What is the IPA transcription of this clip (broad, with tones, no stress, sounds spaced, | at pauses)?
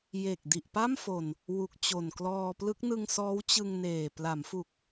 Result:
j e˨˩ k̚ d i˨˩ ʔ p a˥˩ m f o˨˩ n | w u˨˩ k̚ t͡ɕ o˨˩ n k l ɔː˧ p l ɯ˦˥ k̚ n ɯ˧ ŋ s ɔː˦˥ w t͡ɕ ɯ˧ ŋ n eː˨˩ p l a˩˦ m f u˨˩ k̚